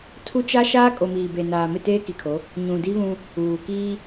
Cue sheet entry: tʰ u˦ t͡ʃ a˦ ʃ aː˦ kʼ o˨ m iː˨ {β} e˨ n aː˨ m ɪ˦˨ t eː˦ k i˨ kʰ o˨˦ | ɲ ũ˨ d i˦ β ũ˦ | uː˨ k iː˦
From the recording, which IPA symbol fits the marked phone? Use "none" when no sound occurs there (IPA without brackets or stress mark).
b